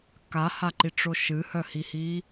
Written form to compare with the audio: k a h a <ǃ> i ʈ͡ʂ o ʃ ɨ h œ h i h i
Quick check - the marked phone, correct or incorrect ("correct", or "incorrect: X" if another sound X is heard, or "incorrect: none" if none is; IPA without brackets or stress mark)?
correct